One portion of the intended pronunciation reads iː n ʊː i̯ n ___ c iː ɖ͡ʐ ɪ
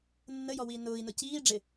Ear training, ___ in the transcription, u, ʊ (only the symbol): ʊ